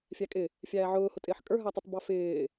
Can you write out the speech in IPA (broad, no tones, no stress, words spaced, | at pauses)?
fʲækʼɪ | fʲæːʕʊːhʊtʼɪːħ kʼə˞ɦætˤʊtˤ bɑfɪː